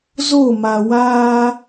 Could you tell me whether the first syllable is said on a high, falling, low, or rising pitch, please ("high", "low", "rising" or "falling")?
falling